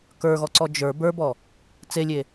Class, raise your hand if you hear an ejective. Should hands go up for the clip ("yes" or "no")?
no